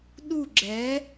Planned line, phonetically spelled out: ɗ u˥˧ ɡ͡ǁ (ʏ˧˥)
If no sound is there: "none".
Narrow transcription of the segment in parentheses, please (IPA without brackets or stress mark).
ɛ˧˥